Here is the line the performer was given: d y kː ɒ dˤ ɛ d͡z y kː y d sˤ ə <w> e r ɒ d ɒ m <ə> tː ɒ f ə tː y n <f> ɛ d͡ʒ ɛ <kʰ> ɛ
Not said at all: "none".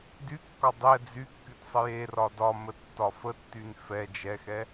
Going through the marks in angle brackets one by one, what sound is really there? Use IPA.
j, ə, f, x

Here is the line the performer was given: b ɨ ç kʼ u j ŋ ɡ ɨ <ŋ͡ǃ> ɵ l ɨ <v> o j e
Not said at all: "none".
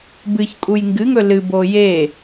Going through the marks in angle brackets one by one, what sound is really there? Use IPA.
ŋ, b

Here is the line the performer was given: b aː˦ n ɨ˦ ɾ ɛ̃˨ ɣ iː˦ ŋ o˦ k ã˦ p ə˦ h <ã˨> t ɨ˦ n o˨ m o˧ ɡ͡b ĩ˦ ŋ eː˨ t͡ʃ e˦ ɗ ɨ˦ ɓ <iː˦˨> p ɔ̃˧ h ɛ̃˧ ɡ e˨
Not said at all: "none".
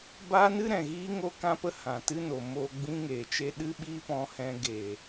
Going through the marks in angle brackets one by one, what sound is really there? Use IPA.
ã˨, iː˦

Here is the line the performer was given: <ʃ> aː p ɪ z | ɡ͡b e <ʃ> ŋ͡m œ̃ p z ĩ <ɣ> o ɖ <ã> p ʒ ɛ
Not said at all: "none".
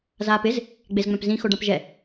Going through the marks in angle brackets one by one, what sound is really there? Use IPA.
z, z, x, ã

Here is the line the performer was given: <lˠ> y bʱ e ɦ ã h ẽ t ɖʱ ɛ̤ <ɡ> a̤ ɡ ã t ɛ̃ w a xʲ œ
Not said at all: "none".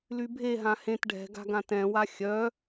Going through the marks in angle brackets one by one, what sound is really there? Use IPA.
l, ɡ

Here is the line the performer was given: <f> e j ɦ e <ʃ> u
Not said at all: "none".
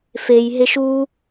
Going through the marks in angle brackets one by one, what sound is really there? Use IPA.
f, ʃ

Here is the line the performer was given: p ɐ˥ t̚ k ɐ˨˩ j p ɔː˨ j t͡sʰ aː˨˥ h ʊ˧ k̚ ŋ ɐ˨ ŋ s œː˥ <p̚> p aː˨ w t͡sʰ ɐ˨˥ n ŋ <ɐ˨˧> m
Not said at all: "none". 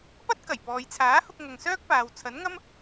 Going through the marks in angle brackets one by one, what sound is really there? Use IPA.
k̚, ɐ˥

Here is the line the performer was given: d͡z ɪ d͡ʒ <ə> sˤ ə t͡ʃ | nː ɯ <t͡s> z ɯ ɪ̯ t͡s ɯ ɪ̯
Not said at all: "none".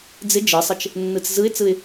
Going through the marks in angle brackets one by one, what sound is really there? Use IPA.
ɯ, t͡s

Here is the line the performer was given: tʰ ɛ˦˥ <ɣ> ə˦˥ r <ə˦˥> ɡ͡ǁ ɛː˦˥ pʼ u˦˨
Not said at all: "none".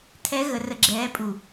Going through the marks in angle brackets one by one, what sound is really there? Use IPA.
ɣ, ə˦˥

